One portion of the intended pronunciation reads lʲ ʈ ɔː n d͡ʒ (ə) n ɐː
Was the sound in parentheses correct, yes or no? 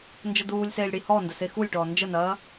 yes